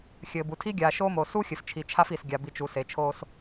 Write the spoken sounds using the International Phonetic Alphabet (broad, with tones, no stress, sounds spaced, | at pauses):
xʲ ɘː˨ b u˨ tʰ i˦ ɡʲ aː˨ ʃ o˦ m o˨ s u˦ xʲ ɘ˨ f t͡ʃʰ i˨ t͡ʃʰ a˦ f i˨ s ɡʲ a˨ b i˨ t͡ʃ u˨ s e˨ t͡ʃʰ oː˦ s